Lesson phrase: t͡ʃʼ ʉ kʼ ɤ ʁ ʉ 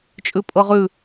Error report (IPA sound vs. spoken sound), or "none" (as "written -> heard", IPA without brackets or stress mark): kʼ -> pʼ